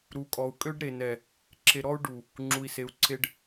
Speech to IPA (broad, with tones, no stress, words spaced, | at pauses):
ɾu˨kʼɔ˨u̯ kʼø˦ɖɾe˨nɛ˨ | ǁʰe˨ɾɔ˦u̯ ɖu˨ | ŋ͡ǁu˨i̯se˨u̯ǀʰe˦ɖ